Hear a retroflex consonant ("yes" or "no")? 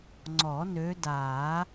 no